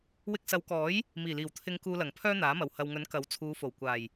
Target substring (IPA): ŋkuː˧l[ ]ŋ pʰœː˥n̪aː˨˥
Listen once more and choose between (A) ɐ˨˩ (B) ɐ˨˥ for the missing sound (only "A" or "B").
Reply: A